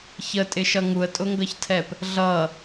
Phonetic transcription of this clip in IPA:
ç ə tʼ ɪ ʃ ʌ ŋ u ə̯ tʼ ʊ ŋ ɡ ʌ ç tʰ ɛ p | ɮ ʌ

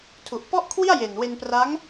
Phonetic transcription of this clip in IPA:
tʰ u˨˩ ʔ p ɔ˥˩ ʔ kʰ w i˥˩ a̯ j e˨˩ n w e˧ n p r a˦˥ ŋ

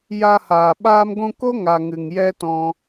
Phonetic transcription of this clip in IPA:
j a˧ h aː˨ ɓ aː˧ m ɡʷ ũ˧ k o˦ ŋ a˨ ŋ ɨ˨ ŋ j ɛ˦ t ɔ̃˧

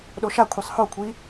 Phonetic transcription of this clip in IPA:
ɗ o ʃ a kʷʰ i sˤ h o kʷʰ i

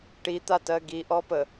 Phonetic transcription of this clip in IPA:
ʈ i t̪ a t ɜ ɡ i ʔ ɔ p ə

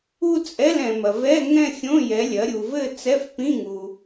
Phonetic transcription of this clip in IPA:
u˥˧ t͡sʼ ɛ˧˥˧ l ɛ̃˨ m ɐ˨ v ɛ˧˥˧ ŋ ɛ̃˥˧ xʲ õ˧˥˧ j ɛ˨˦ lʲ ɐ˨˦ ɾʲ u˨ v ɘ˥˧ t͡s ɛ˧˥˧ f p ĩ˧˥˧ ŋ u˨

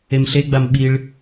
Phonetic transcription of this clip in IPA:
e m ɬ e ɡ͡b a m ɓ i ɭ

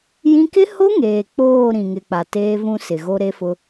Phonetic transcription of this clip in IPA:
j ĩ˦ k ɪ˦ h o˦ ŋ eː˨ k͡p oː˦˨ ɾ ĩ˨ ŋ ɪ˨ k͡p a˨ t eː˦ v ũ˦ s ɪ˨ ɣ o˦ ɾ e˦ f ʊ˦

